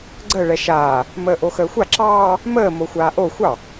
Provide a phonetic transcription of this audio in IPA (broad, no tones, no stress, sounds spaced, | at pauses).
ɡ͡ǀ əː ɭ ɛ ʃ aː | m əː ʔ o x əː xʷ a ǁ ɑː | m əː m o xʷ aː ʔ o xʷ ɑ